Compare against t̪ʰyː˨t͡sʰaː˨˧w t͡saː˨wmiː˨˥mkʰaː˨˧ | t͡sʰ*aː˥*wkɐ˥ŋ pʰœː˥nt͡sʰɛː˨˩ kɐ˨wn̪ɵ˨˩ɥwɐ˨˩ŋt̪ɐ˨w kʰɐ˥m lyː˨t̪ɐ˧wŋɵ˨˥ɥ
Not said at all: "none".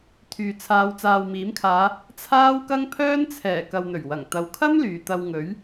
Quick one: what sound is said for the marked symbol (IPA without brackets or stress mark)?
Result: aː˥